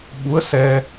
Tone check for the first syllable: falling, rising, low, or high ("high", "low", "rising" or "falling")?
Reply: rising